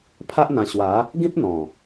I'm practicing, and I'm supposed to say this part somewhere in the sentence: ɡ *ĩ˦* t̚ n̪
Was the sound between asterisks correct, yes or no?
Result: yes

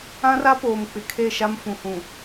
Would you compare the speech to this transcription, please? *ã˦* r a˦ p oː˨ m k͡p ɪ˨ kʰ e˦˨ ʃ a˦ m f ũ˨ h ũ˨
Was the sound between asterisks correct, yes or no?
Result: yes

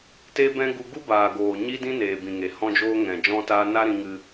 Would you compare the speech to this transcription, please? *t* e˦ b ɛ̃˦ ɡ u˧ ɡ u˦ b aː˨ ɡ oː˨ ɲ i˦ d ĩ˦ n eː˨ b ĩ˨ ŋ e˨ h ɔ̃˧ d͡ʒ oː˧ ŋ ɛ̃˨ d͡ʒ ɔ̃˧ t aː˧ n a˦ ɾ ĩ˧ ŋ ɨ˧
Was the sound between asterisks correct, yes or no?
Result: yes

